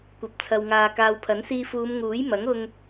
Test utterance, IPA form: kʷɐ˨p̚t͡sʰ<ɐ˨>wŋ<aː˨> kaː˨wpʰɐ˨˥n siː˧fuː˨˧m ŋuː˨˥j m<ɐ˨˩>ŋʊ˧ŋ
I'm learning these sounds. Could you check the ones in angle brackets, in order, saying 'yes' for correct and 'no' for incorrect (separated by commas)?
yes, yes, no